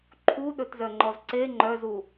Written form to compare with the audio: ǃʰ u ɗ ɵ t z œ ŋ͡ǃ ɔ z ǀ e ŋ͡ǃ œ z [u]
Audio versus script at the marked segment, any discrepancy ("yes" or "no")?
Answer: no